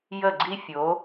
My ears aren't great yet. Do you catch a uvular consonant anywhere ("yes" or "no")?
no